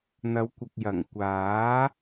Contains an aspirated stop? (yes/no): no